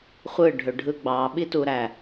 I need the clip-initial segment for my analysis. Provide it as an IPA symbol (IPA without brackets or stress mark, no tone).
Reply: χʷ